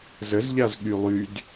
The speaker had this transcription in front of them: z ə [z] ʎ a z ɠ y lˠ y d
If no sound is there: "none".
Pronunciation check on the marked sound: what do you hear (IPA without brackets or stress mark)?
z